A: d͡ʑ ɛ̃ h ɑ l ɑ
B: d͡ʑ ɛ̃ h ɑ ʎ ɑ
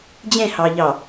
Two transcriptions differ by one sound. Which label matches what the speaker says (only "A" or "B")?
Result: B